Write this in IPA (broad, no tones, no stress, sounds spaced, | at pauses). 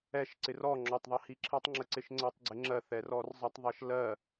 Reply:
ɛ ʃ ǀ ɪ r ɔ ŋ͡ǁ ɔ tˤ ðˤ ɛ h i ǁʰ i tˤ ŋ͡ǁ ə ǀ ɪ ʃ ŋ͡ǀ ə tˤ ɡ͡ǀ ɪ ŋ͡ǁ ɜ θ ɛ r ɔ r zˤ ə tˤ ðˤ ʌ ʃ l ɜ